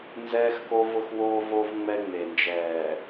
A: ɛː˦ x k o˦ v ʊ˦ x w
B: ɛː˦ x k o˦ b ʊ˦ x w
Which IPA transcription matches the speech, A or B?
A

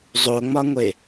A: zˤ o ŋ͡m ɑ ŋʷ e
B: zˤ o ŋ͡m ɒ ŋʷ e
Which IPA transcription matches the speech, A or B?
B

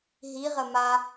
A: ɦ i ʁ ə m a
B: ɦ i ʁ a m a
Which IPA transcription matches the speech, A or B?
A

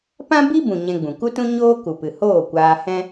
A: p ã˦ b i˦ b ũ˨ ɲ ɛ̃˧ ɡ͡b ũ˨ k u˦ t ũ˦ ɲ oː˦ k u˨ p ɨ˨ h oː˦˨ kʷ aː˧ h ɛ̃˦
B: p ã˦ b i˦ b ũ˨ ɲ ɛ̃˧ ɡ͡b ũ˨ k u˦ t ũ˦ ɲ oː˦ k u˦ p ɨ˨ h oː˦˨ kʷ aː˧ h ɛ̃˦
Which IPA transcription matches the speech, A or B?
A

